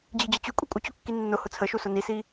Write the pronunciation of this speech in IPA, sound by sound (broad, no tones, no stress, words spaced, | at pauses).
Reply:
d͡ʑid͡ʑət͡ɕy kʷʼikʷʼət͡ɕokːi nːʊ hʊt͡sʰəʃusʊ nisi